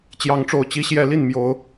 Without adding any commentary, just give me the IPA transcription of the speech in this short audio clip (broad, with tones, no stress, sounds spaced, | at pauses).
t͡ɕ j ɑ˨˦ ŋ ʈ͡ʂ o˨˩ ʊ̯ t͡ɕ i˦ ɕ j ɛ˨˦ l i˥˨ n m j o˨˦ ʊ̯